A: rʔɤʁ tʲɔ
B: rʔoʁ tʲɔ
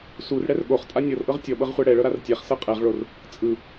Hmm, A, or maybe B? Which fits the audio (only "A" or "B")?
A